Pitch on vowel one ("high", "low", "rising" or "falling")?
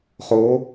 rising